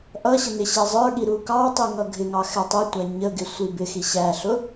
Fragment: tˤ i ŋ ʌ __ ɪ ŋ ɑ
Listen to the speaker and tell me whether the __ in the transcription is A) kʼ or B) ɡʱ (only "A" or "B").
B